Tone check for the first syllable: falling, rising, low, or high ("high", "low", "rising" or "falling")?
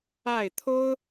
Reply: falling